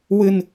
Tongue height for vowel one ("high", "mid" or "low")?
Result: high